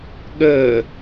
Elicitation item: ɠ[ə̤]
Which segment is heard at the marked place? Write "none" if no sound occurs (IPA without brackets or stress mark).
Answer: ə